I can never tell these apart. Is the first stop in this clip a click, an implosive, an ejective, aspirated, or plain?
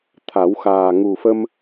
aspirated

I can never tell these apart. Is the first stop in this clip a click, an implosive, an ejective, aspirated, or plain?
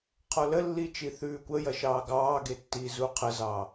aspirated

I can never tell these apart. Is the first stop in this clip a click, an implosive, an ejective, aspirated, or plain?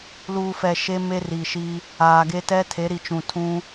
plain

